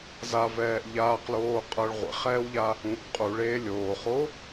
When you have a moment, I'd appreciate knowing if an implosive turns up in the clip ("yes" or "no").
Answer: no